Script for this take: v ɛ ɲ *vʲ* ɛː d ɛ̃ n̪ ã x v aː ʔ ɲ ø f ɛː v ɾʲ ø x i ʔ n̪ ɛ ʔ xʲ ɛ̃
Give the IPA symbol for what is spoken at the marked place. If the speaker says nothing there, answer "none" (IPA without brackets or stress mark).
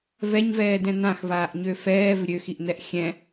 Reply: v